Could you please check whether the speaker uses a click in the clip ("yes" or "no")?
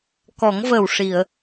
no